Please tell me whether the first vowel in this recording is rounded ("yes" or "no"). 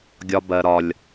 yes